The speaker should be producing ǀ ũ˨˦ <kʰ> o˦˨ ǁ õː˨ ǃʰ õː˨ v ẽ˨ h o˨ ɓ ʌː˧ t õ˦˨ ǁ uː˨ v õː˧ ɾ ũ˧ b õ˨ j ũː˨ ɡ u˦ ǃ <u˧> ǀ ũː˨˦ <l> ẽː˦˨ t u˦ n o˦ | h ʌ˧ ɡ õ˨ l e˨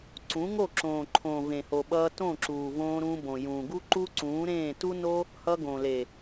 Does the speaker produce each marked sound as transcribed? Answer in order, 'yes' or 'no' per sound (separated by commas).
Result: no, no, no